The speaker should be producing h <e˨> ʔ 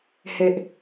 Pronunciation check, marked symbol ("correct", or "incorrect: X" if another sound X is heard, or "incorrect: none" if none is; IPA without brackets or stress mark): correct